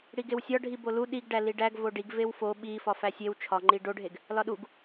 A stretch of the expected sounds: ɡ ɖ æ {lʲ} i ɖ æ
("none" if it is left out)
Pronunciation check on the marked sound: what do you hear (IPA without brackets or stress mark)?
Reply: l